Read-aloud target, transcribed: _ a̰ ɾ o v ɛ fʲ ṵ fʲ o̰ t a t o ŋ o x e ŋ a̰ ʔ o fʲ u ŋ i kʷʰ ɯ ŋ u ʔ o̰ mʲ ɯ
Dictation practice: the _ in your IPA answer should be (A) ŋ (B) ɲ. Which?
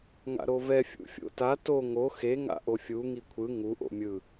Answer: A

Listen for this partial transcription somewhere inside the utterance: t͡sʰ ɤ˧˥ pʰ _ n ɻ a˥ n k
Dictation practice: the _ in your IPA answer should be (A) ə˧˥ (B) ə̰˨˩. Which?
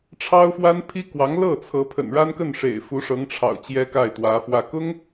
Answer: B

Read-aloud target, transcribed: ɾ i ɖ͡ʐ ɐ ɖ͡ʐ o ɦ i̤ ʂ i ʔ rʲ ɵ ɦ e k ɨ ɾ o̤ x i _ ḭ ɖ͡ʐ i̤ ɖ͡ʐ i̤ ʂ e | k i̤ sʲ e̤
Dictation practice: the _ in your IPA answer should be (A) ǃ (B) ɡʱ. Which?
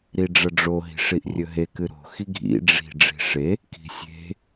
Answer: B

